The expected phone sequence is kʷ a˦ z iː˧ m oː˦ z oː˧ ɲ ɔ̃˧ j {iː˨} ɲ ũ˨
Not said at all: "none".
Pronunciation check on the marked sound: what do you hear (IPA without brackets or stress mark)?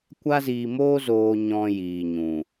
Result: iː˨